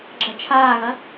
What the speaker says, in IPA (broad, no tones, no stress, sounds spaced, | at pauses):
ɡ͡ǁ ɐ t͡ʃʰ aː ɣ ɐ